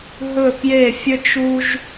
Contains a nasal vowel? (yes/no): no